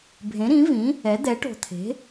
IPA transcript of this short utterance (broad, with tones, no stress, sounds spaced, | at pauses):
bʱ ẽ˩˥ ɾ ĩ˩˥ v ĩ˩˥ | ɛ˩˥ d̪ ɛ˩˥ ʈ o̤˨˩ t̪ʰ e̤˩˥